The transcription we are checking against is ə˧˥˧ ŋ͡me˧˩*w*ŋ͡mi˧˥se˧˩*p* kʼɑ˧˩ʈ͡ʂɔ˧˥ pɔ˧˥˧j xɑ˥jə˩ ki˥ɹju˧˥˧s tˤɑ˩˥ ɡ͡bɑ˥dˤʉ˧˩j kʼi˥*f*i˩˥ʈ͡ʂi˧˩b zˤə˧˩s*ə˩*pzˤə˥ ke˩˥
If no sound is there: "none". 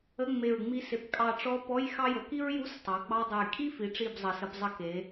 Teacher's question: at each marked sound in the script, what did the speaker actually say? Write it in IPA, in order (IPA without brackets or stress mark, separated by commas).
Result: ɹ, p, f, ə˧˥˧